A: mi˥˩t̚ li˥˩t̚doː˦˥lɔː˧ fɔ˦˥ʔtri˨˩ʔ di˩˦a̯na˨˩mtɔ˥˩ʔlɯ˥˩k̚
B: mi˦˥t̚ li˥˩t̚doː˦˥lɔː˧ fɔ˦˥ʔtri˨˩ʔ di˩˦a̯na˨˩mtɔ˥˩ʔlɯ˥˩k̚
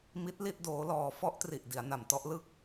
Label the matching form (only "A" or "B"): B